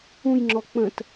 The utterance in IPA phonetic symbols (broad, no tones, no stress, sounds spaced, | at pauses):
ũ j ŋ͡ǁ ɔ k͡p ə̃ t